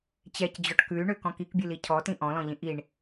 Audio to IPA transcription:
t͡ɕ ɛ c d͡ʑ ɔ ʈ k ʉ y̯ ɳ ø k ɔ̃ k i k bʲ ɨ l i cʰ ɔ t ĩ ʔ ɔ̃ l ɔ̃ ʎ ĩ ʔ i ɳ

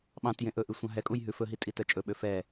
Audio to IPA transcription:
ɓ ɑ̃ t j ẽ ʔ ɵ ʔ y sʷ ɑ̃ ɦ ɛ kʼ u j ɦ ʉ f ɵ ɦ i tʼ i t œ t͡ʃʼ ɵ ɓ ø f ɛ

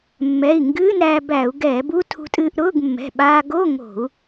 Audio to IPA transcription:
mː ɛ˩˧˩ i̯ ŋ ɡ ɨː˧˥˧ n ɾ æː˧ b æ˧˩˧ u̯ ɡ ɛː˧˩˧ b u˧˥˧ tʰ ṳ˧ tʼ ɨː˧ ʔ ɾ ʊː˧˥˧ ɡ mː ɛ̤˩˧˩ ɓ aː˧ ɡ o˧˥˧ ŋ o̤˧˩˧ u̯

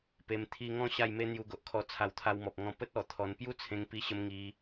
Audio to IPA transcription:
p e˧ m t̪ʰ i˧ ŋ ɔ̃˦ ɕ a˥˧ j m e˦ n̪ j u˧ ɡ o˨ ʔ kʰ ɔ˧ t͡sʰ a˧ w t̪ʰ a˧ w m ɔ˨ p̚ ŋ ɔ̃˧ p ə˦ t̚ ɔ˨˩ t̪ʰ ɔ˧ n p j u˦ t͡sʰ ẽ˧ ŋ p i˧ ɕ ə˧ m ŋ i˧

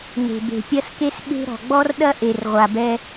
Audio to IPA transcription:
n e̤˨ b e̤˨ pʲ ɐ˦ s k e˦ s ɓ e̤˦ ɾ ɔ̤˨ ɡ͡b ɔ˦ r ɗ ɐ˦ ʔ e˨ r ʁʷ a˨ b ɛ˦

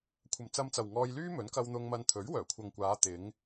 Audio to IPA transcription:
kʷʰ ɐ˨ m t͡s ɐ˧ m t͡s ɐ˨ w ŋ ɔː˧ j l yː˥ m ɵ˨˥ n k ɐ˧ w n̪ ʊ˧ ŋ m ɐ˧ n t̪ʰ ɵ˨˥ ɥ w œː˨˩ kʷʰ ɐ˨ ŋ kʷ aː˨˧ t̪ ɪ˨˧ ŋ

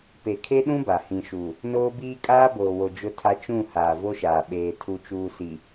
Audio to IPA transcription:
p e˨ kʰ e˦ ɗ ũ˦ b a˨ h ĩ˨ ʃ u˨ | n oː˦ b iː˦ kʼ aː˦ b oː˨ w o˨ d͡ʒ ʊ˦ tʰ a˦ t͡ʃ ũ˦˨ h aː˨ v o˦ ʃ aː˨ ɓ eː˨ tʰ u˨ t͡ʃ uː˨ s i˨

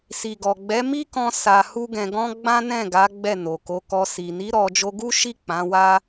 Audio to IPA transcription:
s i˨ ɡ ɔ˨ ɡ͡b ɛ˨˦ m i˦ k ɔ̃˧ s a˧ h u˦ ɡ ɛ̃˧ ɡ ɔ̃˦ ɡ͡b ã˦ n ɛ̃˦˨ ɡ a˨˦ ɡ͡b ɛ˦˨ n o˨ k o˨˦ k ɔ˧ s i˨ n i˨˦ ɾ ɔ˧ d͡ʒ o˧ ɡ u˦ ʃ i˦˨ k͡p ã˨˦ w a˦

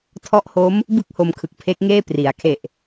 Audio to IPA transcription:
tʰ ɔ˦˥ ʔ h o˦˥ m | b ɯ˥˩ k̚ h o˧ m kʰ ɯ˨˩ k̚ pʰ e˦˥ k̚ ŋ eː˥˩ p r i˩˦ a̯ kʰ e˨˩ ʔ

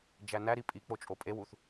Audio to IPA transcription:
d͡ʒ æ n æ ɾ i pʼ i k͡p o t͡ʃʼ o pʼ e w u θ

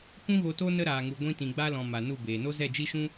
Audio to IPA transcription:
kʷ ũ˦ ɣ o˧ t o˦ n ə˦ ɾ aː˨ ŋ u˨ ɡʷ ĩ˧ t ĩ˨ ɡ͡b a˦ l ɔ̃˨ m a˨ n u˦˨ b eː˨ n o˦ z ɛ˦˨ d͡ʒ i˦ ʃ ũ˦

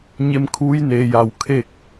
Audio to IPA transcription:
ɲ e˧˥ m kʰ uː˧˥ j n eː˩ j a˧˩ w kʰ e˥˨ k̚

